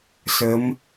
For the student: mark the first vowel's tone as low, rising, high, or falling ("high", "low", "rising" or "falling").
rising